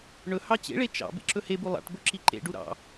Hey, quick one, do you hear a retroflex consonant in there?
yes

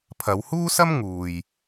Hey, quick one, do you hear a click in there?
no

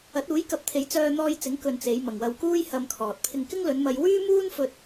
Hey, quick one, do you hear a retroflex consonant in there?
no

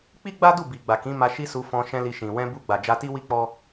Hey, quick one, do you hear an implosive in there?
no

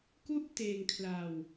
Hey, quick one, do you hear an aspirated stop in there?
yes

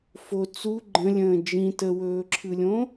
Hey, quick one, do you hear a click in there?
yes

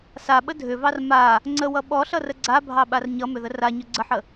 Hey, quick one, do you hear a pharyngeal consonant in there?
yes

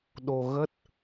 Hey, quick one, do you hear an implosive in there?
yes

